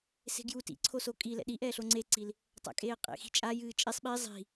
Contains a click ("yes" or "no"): yes